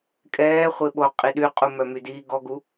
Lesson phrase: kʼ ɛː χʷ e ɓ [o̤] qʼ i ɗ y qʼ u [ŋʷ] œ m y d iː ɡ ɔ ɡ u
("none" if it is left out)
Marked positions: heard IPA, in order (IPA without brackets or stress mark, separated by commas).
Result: o, m